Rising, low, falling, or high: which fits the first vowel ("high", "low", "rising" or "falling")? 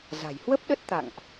low